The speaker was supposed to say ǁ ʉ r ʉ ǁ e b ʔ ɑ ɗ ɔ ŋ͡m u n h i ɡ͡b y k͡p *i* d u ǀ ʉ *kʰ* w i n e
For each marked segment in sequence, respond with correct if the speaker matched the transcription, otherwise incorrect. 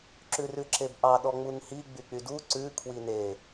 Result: incorrect: y, correct

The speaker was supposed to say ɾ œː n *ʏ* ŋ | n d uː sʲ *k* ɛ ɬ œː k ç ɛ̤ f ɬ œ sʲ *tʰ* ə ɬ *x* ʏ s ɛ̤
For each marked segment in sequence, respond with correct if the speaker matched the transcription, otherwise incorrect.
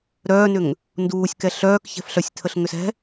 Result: correct, correct, correct, incorrect: ŋ

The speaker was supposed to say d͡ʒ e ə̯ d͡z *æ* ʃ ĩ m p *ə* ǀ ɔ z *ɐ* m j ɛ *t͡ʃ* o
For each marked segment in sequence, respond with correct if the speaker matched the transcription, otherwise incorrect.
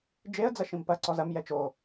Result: incorrect: ɐ, incorrect: ɐ, correct, correct

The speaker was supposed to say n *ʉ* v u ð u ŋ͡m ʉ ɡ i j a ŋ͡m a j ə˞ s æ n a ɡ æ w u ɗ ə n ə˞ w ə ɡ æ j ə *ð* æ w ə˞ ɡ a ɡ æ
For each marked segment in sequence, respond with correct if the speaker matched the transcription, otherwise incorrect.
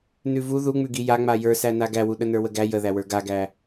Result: correct, correct

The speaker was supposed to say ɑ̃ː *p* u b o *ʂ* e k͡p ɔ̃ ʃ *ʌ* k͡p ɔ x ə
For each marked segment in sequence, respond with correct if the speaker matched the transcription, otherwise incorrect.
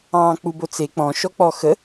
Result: incorrect: k͡p, incorrect: t͡s, incorrect: ɔ

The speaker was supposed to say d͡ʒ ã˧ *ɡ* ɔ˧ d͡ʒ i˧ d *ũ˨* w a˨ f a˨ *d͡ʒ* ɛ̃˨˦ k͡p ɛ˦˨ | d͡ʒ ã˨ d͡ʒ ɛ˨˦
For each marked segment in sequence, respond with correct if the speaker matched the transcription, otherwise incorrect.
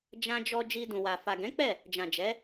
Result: incorrect: d͡ʒ, correct, incorrect: ɡ

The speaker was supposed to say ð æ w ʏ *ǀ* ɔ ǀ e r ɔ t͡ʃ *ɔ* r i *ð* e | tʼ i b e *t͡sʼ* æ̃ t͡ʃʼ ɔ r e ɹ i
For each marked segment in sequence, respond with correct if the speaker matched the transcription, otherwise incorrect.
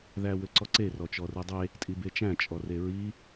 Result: correct, correct, incorrect: dˤ, incorrect: t͡ʃ

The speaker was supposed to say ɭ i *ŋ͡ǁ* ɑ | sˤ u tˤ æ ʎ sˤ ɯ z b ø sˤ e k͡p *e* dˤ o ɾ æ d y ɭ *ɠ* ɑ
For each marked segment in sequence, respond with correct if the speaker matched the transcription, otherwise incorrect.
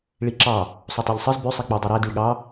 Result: incorrect: ǁ, correct, correct

